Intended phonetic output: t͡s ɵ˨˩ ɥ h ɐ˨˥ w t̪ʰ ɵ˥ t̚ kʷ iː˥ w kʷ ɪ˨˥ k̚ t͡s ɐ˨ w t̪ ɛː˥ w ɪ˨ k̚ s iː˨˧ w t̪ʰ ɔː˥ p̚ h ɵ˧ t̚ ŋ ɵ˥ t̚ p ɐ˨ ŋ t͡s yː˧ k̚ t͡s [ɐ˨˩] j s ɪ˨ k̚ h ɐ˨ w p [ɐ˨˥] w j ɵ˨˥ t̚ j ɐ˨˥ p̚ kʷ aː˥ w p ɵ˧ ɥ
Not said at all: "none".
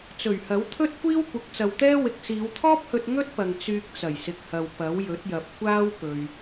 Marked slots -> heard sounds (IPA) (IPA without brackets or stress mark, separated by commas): ɐ˨˩, ɐ˨˥